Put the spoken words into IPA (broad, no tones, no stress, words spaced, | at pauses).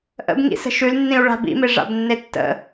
ʔə̰bŋḭsə̤ ʃʉlnːĩu̯ ɭa̤bḭme ʐa̰bnːetːə̰